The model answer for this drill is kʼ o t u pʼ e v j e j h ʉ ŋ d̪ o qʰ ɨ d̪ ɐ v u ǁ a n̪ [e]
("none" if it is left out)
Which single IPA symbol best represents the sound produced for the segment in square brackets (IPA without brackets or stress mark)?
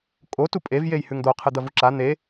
e